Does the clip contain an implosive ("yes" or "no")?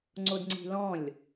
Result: no